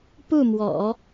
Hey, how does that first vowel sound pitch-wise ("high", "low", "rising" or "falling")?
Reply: falling